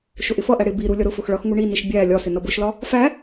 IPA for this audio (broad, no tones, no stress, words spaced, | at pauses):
ʃʊʔɪfʌʔæ ɽɪ bi ɾulʲʌɾʊfʊx ɭʌxŋu ɳiniʃ bʲæ lʲɒsɪ nʌbʊʃlɒ | fæ